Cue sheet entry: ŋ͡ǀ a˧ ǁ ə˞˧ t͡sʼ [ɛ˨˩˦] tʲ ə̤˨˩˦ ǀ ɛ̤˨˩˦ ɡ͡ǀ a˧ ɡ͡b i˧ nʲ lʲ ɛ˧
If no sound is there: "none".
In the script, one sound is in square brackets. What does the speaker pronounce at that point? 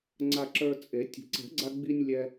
e˨˩˦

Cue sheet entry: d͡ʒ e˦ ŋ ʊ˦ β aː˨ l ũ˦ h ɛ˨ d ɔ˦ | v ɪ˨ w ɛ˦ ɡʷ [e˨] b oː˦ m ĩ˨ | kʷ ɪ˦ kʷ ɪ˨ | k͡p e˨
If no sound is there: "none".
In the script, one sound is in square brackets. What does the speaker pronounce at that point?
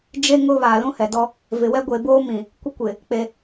e˨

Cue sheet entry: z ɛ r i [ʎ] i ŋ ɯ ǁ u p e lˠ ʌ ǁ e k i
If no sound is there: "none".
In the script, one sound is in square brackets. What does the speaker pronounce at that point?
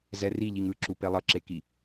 ʎ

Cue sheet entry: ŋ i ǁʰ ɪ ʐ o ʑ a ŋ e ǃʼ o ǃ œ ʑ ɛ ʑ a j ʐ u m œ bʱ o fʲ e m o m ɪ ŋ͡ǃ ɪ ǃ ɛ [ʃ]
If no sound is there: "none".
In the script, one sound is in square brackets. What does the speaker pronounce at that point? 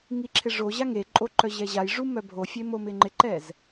z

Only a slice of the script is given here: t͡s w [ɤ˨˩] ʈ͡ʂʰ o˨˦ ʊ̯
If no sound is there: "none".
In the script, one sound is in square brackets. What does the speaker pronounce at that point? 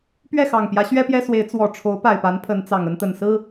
ɔ˨˩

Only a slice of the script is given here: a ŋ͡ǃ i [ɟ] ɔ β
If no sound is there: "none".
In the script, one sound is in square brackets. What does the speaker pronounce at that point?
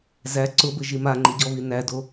ɟ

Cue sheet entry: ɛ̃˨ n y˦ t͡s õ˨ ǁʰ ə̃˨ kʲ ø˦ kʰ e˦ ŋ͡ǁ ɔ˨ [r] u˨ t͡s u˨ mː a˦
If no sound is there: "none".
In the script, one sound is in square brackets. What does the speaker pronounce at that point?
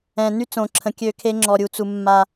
ɾʲ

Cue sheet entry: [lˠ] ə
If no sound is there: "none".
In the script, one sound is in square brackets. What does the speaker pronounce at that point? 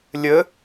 lʲ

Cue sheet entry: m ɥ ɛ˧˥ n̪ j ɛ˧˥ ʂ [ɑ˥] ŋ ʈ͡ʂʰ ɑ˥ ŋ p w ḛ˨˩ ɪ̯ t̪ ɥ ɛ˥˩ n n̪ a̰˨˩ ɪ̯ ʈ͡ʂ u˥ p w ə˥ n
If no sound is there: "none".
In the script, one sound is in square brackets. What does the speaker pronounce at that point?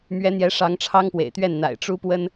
ɑ˧˥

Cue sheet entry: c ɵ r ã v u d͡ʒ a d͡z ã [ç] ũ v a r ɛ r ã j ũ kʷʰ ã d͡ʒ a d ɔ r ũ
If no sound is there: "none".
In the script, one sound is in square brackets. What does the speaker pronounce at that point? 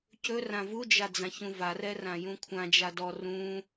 ç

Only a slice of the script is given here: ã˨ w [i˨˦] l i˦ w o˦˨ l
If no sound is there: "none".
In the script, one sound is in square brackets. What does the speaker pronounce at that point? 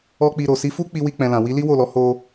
i˨˦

